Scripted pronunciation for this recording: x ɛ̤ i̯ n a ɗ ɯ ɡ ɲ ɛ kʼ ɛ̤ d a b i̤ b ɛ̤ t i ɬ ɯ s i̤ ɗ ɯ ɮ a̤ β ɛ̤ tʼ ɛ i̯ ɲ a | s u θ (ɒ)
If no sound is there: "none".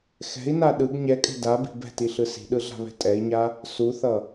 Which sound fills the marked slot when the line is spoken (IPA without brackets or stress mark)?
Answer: ʌ